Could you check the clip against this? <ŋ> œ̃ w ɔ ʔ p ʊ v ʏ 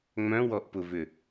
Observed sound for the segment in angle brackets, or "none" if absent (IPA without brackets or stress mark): ŋ͡m